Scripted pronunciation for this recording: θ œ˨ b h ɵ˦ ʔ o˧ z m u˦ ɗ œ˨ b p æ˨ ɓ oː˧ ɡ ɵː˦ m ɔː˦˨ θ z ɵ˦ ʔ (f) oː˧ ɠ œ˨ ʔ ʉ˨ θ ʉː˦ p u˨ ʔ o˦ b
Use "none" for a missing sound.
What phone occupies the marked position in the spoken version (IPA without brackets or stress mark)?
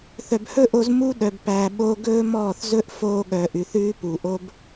f